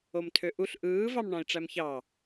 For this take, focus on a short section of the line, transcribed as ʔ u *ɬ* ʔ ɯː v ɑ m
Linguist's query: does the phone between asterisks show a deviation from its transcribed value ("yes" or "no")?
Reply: no